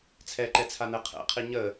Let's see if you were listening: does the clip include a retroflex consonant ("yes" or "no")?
no